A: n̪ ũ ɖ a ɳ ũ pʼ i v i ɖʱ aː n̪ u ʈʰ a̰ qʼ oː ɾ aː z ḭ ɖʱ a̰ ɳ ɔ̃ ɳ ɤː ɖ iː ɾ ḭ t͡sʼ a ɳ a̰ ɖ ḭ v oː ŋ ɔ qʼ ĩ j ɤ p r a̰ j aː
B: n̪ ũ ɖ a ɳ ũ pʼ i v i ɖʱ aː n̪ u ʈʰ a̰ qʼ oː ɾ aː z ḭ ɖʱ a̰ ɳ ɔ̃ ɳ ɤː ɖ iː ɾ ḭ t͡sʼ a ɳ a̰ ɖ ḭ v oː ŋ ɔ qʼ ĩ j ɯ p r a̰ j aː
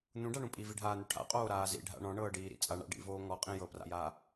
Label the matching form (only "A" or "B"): A